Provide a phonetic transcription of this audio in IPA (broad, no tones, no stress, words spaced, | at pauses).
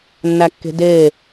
nːækːe̤deː